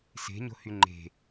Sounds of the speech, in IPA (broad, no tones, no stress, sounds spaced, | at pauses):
s e̤ ɲ o̤ h y ŋ͡ǃ e̤